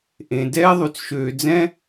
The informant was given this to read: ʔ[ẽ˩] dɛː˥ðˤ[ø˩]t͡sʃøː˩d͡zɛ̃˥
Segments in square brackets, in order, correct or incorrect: correct, incorrect: ʉ˩

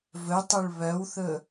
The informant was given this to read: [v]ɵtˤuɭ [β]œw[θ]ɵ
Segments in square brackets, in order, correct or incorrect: correct, correct, correct

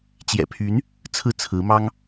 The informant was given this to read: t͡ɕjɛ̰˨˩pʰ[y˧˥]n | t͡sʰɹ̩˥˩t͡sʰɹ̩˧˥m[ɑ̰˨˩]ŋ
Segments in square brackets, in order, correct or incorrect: correct, incorrect: ɑ˥

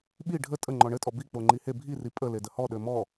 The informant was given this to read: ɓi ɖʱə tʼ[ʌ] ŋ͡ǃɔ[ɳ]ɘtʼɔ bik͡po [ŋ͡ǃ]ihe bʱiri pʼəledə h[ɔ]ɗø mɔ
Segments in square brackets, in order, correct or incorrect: incorrect: ə, correct, correct, correct

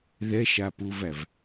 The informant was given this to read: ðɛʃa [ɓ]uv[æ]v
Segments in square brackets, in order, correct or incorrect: incorrect: p, correct

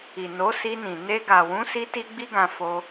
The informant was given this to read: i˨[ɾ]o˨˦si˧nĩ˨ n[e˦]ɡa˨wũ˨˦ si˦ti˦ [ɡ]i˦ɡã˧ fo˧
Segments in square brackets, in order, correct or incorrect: incorrect: n, incorrect: e˧, incorrect: ɡ͡b

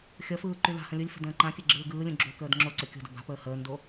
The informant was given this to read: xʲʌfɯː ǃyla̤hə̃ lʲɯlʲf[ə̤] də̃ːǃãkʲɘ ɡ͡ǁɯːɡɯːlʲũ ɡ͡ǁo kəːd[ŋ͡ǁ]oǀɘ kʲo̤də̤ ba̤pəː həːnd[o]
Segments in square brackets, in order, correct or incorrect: correct, correct, correct

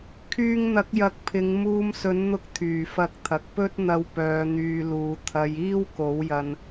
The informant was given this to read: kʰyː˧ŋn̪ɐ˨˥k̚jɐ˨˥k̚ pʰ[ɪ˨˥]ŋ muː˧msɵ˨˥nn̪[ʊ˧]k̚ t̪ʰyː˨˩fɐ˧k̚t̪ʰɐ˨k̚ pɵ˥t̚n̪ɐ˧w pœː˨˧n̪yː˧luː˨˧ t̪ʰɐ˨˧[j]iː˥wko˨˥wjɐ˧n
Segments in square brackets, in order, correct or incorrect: incorrect: ɪ˨˧, correct, correct

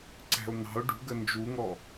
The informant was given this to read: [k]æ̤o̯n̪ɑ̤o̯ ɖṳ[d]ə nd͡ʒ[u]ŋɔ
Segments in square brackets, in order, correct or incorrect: incorrect: ǀ, incorrect: ɡ, correct

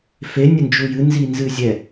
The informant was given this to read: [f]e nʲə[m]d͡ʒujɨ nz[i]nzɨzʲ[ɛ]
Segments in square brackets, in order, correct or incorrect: correct, incorrect: n, correct, correct

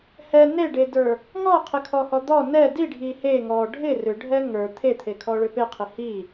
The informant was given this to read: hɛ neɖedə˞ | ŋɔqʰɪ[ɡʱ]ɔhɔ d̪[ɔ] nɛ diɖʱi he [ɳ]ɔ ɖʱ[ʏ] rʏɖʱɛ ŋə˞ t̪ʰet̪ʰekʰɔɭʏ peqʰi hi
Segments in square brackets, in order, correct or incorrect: incorrect: kʰ, correct, incorrect: ŋ, incorrect: ɪ

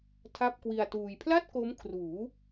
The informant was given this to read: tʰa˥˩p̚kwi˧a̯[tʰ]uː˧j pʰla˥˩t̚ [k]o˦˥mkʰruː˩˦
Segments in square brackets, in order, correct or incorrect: incorrect: t, correct

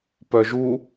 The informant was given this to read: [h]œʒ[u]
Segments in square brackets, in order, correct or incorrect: incorrect: p, correct

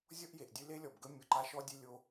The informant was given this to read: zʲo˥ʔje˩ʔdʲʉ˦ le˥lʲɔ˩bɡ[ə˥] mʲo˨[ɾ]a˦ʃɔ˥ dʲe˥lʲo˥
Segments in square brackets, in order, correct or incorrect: correct, incorrect: ǃ

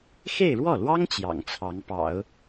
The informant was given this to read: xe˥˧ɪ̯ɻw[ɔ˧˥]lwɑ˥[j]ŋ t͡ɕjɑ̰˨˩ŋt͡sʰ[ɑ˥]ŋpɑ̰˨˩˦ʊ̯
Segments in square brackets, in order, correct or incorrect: incorrect: ɔ˥˩, incorrect: none, incorrect: ɑ˧˥

